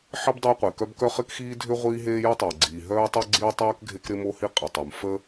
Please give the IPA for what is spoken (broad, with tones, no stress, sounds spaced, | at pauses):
ħ ɪ˥ b dˤ əː˥ qʷ e˩ k œ˥ b k œ˥ χ ɪ˥ k x iː˥ dʱ ʏ˥ ʁʷ iː˥ ɦ eː˥ j ə˥ tˤ əː˩ ɡ͡ǀ iː˩ ɦ œː˥ tˤ o˥ ɡ͡ǀ iː˥ tˤ œː˥ k ɡʱ e˥ k ɾ ɪ˥ m o˥ h i˥ qʼ i˩ tˤ u˩ m f əː˥